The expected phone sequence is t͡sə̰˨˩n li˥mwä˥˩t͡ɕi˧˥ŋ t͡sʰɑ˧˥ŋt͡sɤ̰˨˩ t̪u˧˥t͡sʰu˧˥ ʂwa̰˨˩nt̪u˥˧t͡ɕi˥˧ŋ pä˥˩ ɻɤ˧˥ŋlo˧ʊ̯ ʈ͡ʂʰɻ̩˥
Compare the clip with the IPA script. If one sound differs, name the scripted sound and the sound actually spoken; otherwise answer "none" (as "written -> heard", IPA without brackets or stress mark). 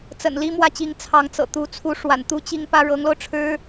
none